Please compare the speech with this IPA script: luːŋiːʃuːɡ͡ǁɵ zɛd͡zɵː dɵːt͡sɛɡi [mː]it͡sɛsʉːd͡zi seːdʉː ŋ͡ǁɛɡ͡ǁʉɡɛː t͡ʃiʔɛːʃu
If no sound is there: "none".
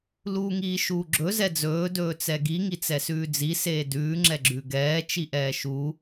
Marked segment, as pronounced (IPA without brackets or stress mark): ŋ